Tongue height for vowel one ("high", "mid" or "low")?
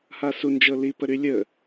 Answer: low